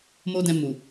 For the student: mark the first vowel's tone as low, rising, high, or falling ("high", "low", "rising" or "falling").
high